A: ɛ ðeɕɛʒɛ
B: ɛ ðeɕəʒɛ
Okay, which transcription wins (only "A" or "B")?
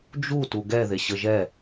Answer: B